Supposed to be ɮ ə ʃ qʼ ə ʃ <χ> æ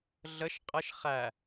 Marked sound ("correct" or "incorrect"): correct